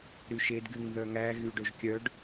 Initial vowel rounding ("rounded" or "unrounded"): rounded